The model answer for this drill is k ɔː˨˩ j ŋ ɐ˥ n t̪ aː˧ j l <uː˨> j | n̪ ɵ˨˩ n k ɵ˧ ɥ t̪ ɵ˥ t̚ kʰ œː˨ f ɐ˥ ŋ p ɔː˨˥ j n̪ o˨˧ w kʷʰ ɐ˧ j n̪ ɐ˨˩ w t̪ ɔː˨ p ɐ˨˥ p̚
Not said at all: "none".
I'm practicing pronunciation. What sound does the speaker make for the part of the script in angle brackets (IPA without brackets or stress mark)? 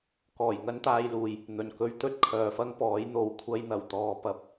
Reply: uː˨